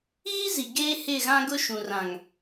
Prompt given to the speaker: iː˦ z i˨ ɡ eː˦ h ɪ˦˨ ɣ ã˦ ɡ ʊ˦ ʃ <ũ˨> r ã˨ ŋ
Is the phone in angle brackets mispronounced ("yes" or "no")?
no